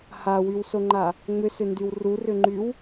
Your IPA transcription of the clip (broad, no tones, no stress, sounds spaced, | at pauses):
h a w y w s o ŋ͡ǃ a | ŋ͡m ʏ s ʏ n d y w r u r ʏ ŋ͡ǃ y w